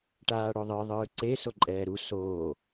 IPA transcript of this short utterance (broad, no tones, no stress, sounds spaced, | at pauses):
ʈ aː ɽ o ðˤ ɯ ðˤ ɯː ǀ e s o ǃʼ ɛː ɾ u s oː